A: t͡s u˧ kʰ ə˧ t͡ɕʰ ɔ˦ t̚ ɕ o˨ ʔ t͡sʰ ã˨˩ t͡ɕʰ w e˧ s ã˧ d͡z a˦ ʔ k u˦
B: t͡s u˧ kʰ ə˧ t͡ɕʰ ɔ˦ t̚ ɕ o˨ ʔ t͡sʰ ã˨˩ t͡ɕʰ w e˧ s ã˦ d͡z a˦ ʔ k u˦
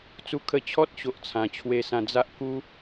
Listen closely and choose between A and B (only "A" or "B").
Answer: A